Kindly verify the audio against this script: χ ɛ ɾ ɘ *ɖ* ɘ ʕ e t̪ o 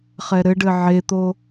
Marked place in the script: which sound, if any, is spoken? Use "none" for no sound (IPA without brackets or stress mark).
ɖ